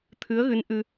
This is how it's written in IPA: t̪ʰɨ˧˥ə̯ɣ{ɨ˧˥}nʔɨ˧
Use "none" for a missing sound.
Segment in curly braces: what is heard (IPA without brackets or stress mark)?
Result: ɨ˧˥